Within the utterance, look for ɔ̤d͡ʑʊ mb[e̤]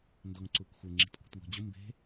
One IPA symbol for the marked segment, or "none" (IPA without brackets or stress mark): e̤